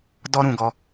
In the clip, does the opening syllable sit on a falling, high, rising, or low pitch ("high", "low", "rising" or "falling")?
high